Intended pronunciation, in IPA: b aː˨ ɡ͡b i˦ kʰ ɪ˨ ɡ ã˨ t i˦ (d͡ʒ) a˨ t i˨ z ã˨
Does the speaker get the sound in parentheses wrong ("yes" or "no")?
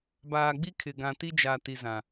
no